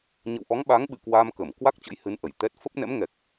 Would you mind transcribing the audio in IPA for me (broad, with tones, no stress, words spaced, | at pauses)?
ɲə̰˧˨wʔɔ˨˦ŋɓa˨˦ŋɓɨ̰˧˨ kwa˧mkə˧˩m kwa˦˥k̚t͡ɕə̰˧˥jhɨ˨˦n ʔə˧˩jt̪ɛ˦˥t̚ fə˦˥p̚nɛ̰˧˥mŋɛ˨˩k̚